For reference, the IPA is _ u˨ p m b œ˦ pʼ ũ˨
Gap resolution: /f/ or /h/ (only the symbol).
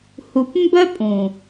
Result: h